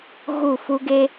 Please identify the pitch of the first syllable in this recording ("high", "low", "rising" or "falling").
falling